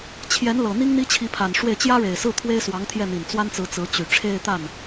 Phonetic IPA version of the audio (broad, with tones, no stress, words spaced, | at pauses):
t͡ɕʰjɛ˧˥nlɤ˨˩n̪i˥ŋ n̪i˥t͡ɕʰi˧˥pʰa˨˩nʂwe˥˩ɪ̯ t͡ɕjä˥ɻe˨˩ɪ̯sɹ̩˥˩ t̪ʰwe˥ɪ̯swɑ˧˥ŋt̪ʰjɛ˥˩n̪i˨˩n t͡swa˥nt͡sɹ̩˧˥ t͡sɹ̩˧˥t͡ɕy˨˩ ʈ͡ʂʰe˥˧ɪ̯t̪a˥˩n